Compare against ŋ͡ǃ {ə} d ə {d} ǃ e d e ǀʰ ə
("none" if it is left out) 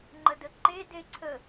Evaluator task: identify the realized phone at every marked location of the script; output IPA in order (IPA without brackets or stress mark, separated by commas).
ə, none